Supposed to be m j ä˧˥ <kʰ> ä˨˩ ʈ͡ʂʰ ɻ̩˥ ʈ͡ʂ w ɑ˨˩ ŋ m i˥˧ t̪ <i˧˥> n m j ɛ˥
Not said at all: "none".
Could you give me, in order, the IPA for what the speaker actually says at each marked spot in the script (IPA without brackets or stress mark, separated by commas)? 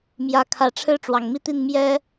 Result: kʰ, i˥˩